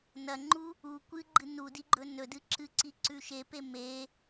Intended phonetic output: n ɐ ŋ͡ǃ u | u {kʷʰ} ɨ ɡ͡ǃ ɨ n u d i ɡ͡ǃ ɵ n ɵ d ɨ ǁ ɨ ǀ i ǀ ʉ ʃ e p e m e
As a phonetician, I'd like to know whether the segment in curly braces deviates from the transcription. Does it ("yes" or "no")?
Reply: yes